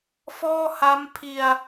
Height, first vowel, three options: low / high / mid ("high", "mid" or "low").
mid